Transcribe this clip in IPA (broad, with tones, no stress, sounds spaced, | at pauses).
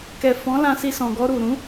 k ɛ˨ f ɔ̃˨˦ l ã˧ s i˧ s ɔ̃˨ ɡ ɔ˧ ɾ u˨ ɾ ũ˨˦